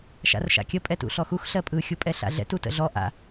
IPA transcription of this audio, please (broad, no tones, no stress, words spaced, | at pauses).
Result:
ʃa̰rʃa̰kʲə pʼɛtṵɬɔxux ɬɜpʼɯ xʲupʼɛɬa̰ɮɛ̰t utə̰ɮɔ ʔa̰